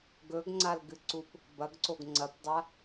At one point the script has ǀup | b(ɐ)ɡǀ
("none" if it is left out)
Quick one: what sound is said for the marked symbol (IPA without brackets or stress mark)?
ɐ